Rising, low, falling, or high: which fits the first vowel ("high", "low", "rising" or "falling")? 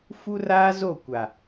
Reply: high